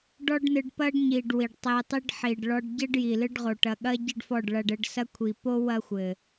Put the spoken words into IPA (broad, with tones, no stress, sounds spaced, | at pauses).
ɖ ɔ˦ ɖ n ɨ˧ ɖ p ɐ˦ ɖ ɲ i˨ ɖ w i˨ ɖ tˤ e˧ tˤ i˦ ɖ ħ i˨ ɖ ɭ ɔ˧ ɖ ɟ ɘ˦ ɖ j i˨ l ɨ˦ ɖ ʁ o˨ ʈ ɐ˨ ɠ ɐ˦ ɟ ɘ˦ ɖ f ɔ˦˨ ɖ ɭ ɐ˧ ɖ ɘ˧ ɖ s ɐ˦ kʷʰ i˨ p o˦ w ɐ˦ xʷ ɘ˨